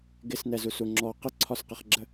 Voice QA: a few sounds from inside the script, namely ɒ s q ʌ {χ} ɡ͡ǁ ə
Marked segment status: correct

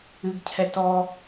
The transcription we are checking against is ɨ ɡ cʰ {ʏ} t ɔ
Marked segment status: incorrect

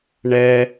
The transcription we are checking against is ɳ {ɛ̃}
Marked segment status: incorrect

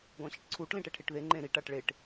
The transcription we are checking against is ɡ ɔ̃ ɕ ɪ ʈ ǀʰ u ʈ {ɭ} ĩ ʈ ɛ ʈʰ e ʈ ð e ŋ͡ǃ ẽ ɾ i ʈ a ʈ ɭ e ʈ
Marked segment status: incorrect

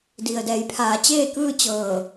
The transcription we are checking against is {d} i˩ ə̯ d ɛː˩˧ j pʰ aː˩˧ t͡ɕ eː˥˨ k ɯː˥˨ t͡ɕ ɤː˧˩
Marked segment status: correct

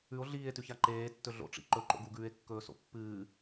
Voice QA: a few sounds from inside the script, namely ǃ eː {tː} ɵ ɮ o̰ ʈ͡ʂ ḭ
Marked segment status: correct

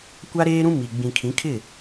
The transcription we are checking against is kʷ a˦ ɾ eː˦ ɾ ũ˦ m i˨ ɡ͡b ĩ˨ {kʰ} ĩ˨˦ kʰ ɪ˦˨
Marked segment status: correct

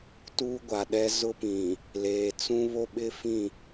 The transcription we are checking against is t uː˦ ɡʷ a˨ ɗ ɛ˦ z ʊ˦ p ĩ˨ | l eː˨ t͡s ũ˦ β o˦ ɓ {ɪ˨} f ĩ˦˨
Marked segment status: incorrect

